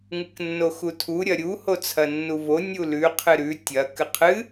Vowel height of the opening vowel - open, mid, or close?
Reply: close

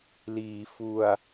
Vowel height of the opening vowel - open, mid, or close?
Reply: close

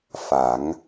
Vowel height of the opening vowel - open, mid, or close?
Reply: open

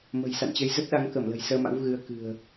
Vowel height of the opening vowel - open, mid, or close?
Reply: mid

